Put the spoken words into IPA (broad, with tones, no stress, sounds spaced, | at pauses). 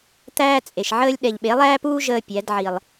t̪ æː˦ t͡sʼ e˨ ʃ ʕ əː˦ lʲ ɗ ɛ˨ ʎ ɓ e˨˦ lˠ æː˦ p uː˦ ʒ əː˦ pʲ æ˨˦ d ʕ i˨ lˠ